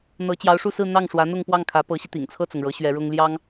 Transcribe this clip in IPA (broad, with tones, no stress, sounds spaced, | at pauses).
n̪ ɤ˧˥ t͡ɕ j ɑ˧˥ ʊ̯ ʂ u˥˧ s ɹ̩˥˧ n̪ ɑ˥˩ ŋ ʂ w ä˧˥ n̪ ʊ˥˧ ŋ p w ɑ˥˩ ŋ kʰ ä˧˥ p ɤ˧˥ ɕ i˧ t̪ ḭ˨˩ ŋ t͡sʰ ɤ˥˩ t͡s ʊ˩ ŋ ɻ ɤ˧˥ ɕ ɥ ɛ˧˥ ɻ ʊ˥ ŋ l j ɑ˥ ŋ